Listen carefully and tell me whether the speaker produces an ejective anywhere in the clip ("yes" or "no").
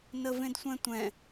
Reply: no